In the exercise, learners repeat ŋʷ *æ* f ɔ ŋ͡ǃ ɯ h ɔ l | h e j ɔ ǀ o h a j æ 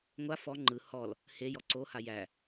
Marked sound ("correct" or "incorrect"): incorrect